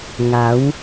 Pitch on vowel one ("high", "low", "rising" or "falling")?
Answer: rising